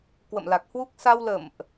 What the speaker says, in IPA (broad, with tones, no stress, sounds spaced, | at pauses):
k w ə̰˧˨ m l a˨˩ k̚ h w u˦˥ k̚ s a˧ w l ə̰˧˨ m ʔ